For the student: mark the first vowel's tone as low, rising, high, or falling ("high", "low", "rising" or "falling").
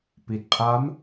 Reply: low